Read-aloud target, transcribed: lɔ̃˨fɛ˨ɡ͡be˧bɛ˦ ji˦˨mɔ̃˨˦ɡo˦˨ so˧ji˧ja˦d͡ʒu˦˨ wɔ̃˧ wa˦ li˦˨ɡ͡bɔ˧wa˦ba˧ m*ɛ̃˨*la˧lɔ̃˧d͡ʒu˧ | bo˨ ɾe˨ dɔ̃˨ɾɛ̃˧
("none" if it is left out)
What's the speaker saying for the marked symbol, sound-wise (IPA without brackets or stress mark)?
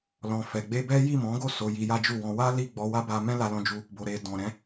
ɛ̃˦